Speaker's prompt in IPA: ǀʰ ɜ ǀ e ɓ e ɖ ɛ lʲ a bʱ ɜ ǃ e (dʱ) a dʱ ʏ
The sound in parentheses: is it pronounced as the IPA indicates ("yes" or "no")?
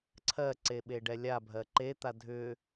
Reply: no